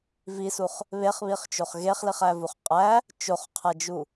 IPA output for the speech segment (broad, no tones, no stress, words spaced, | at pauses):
visuχ | βeχβiχt͡ʃoχ ɣeχliχævuχ qʼæ | t͡ʃoχqʰæd͡ʒu